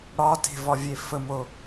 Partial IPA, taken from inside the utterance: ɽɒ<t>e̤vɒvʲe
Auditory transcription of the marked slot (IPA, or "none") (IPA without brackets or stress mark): t